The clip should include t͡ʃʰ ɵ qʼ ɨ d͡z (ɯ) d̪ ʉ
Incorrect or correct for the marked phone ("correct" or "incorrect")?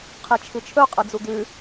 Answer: incorrect